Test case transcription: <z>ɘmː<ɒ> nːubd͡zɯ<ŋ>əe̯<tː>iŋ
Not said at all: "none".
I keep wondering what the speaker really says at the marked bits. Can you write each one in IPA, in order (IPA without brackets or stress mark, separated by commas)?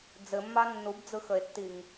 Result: d͡z, ɑ, x, tː